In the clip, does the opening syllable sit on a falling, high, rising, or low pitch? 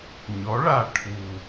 rising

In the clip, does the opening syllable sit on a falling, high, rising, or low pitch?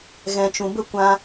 low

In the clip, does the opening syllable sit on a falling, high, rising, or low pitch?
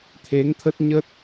rising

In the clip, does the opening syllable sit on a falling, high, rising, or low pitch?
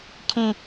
high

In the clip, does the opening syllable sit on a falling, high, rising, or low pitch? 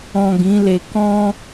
low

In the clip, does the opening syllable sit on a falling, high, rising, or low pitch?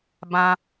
low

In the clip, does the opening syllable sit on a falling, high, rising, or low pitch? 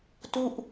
falling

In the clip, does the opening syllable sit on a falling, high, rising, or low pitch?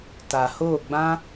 low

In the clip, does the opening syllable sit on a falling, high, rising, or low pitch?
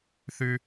high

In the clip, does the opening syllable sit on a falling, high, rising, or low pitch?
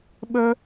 high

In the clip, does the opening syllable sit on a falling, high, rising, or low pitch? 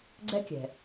high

